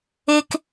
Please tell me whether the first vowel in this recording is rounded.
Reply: no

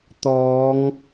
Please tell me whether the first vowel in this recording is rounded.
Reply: yes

